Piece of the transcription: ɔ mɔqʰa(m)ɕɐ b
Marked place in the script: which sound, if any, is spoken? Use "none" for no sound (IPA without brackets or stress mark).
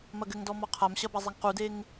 m